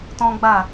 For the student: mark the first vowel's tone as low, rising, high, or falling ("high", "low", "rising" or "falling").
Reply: high